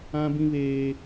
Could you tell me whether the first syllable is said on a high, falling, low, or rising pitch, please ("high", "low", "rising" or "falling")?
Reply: high